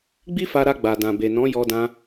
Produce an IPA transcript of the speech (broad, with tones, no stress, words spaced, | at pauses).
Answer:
ɡ͡bi˦fa˧ɾa˧ ɡ͡ba˨dã˨be˨ nɔ̃˨˦jɔ˧dã˧